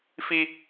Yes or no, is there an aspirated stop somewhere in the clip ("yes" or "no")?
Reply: no